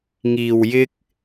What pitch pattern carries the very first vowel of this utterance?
low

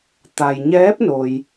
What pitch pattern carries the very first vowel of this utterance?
low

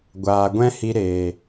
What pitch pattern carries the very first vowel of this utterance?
low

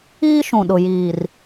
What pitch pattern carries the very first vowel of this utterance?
high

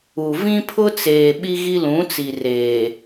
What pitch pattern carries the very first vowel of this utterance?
low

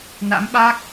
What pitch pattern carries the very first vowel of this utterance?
rising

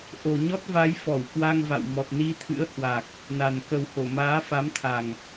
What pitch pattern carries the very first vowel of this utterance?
low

